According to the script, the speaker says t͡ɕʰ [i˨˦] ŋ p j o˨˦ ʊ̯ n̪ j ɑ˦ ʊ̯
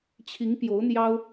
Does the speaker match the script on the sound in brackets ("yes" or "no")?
yes